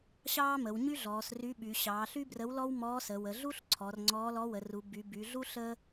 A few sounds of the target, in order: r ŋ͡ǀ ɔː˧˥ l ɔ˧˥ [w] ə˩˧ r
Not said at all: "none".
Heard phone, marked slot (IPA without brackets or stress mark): w